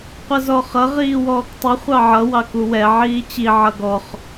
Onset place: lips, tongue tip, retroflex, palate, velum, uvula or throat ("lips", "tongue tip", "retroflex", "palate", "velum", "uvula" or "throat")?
uvula